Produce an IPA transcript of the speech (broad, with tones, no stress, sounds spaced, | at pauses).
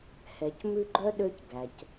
h ɛ˩ c m ʉ˦ ɡ͡ǃ œ˥ ɗ ø˦ c ɡ æ˩ c